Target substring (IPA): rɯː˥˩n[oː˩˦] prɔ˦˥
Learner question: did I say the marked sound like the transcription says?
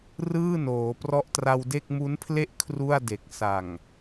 yes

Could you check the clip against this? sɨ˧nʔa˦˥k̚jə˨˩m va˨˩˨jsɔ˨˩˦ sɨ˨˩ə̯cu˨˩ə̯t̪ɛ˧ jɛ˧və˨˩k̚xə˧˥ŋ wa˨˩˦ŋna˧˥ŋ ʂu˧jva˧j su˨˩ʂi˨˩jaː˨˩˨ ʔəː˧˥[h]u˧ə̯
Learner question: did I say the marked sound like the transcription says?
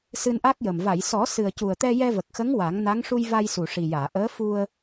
no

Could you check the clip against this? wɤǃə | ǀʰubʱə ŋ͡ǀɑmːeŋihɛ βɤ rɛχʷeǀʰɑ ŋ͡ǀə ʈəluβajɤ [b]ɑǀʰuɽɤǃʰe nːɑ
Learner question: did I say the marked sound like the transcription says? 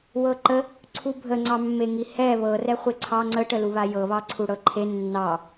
no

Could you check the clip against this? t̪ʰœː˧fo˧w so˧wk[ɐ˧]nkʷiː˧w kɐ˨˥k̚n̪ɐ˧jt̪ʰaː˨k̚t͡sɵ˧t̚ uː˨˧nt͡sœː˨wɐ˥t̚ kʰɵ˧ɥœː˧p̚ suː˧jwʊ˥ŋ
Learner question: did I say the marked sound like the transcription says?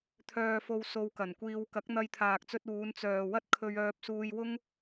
no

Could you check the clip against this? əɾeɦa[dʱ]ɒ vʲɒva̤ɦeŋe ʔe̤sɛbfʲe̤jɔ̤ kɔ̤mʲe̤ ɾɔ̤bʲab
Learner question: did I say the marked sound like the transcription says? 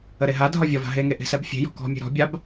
yes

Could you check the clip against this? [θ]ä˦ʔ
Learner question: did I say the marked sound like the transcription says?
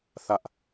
yes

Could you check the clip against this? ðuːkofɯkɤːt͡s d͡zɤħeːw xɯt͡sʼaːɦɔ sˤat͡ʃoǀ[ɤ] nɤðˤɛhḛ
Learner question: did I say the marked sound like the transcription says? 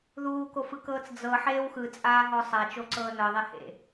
no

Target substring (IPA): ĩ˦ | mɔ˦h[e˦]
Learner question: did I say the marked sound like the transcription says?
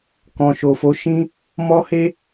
yes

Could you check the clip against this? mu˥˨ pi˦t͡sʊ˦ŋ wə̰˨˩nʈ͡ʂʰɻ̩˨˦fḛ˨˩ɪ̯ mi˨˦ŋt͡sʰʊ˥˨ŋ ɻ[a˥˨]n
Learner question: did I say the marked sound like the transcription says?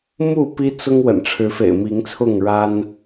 no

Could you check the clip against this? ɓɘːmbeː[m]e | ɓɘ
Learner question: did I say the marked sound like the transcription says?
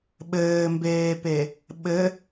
no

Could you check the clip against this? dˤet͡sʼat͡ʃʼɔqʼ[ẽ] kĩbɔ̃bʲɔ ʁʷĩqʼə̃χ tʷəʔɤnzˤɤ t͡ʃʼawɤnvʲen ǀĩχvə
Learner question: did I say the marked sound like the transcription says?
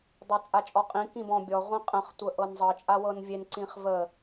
no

